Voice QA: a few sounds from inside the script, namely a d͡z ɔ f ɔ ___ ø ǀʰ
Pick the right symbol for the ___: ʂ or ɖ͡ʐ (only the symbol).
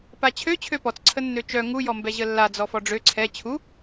ɖ͡ʐ